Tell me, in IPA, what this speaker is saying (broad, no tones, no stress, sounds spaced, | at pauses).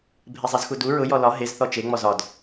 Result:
bʱ e zˤ e z x u d u ɹ ʊ j ɔ l ɒ ɦ e z θ ɔ t͡ʃ e ŋ͡m ɔ z ɒ d